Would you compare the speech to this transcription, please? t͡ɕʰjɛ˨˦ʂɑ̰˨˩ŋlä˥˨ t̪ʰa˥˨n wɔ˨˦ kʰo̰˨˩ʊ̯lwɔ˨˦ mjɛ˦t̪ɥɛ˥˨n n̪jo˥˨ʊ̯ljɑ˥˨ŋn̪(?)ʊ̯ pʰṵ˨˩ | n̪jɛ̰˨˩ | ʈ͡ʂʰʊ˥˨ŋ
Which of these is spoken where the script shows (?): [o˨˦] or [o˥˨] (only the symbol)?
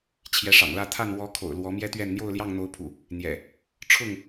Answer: o˨˦